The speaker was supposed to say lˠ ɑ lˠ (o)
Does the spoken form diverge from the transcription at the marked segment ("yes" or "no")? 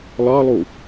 yes